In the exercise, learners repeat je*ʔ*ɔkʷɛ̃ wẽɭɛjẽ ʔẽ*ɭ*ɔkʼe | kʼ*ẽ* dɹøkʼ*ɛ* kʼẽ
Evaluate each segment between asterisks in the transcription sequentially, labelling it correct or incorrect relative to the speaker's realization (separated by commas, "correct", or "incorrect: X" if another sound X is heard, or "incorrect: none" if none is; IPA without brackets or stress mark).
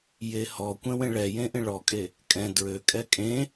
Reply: incorrect: h, correct, incorrect: ɛ̃, correct